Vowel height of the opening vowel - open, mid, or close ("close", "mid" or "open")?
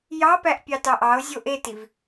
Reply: open